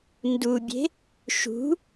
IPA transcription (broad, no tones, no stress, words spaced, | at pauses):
ndubʲe̤ | ʃṳ